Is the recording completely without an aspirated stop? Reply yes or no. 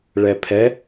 no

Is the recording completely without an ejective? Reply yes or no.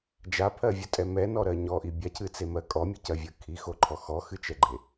no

